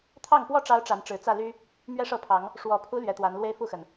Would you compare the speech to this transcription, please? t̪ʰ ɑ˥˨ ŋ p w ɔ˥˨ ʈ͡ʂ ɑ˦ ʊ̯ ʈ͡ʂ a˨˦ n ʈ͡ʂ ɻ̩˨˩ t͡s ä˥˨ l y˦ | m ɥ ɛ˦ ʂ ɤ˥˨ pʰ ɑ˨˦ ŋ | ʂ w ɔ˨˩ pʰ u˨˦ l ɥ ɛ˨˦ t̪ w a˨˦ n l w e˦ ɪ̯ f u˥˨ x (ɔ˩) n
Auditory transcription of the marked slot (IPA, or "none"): ə˩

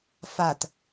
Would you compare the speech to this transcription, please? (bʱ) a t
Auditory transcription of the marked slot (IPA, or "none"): f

